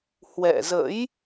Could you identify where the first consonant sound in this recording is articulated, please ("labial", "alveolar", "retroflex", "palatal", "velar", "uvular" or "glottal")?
glottal